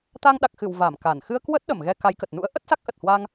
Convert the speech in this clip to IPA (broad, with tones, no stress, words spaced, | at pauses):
t̪a˧ŋɗa˨˩k̚xɨ˧˩w va˧˩m ka˧˩n xɨ˧ə̯kwə˦˥t̚ ɗə˧˩mɣɛ˧ ka˨˦jkə˨˩t̚ nṵ˧˥ə̯ʔə˦˥t̚ sa˦˥k̚ʔə˨˩t̚ hwa˧ŋ